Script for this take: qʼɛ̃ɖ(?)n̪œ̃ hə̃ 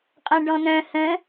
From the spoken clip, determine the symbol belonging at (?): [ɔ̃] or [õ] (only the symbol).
ɔ̃